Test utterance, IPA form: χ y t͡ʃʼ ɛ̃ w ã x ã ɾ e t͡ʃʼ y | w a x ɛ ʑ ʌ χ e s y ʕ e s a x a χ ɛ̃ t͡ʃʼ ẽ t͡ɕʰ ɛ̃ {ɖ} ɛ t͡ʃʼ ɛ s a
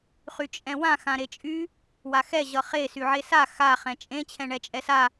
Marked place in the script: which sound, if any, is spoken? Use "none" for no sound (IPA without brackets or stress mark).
ɳ